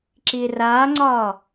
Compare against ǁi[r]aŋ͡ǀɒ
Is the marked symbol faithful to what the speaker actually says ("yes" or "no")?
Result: yes